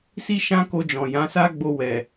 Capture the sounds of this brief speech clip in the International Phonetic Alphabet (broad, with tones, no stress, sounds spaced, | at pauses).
s i˦ ʃ ã˦ k o˧ d͡ʒ ɔ̃˨ j ã˨˦ s a˦ ɡ͡b o˧ w ɛ˨